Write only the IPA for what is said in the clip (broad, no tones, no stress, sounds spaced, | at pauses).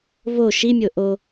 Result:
v o ʃ i mʲ o ʔ o